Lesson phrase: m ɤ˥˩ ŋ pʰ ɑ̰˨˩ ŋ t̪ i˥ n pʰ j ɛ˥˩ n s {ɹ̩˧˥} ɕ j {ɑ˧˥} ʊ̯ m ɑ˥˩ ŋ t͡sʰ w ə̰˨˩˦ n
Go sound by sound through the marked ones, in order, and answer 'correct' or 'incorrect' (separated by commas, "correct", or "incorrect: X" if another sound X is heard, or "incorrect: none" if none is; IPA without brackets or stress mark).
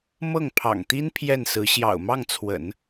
correct, incorrect: ɑ̰˨˩